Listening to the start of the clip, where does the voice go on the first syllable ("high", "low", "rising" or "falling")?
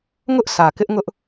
high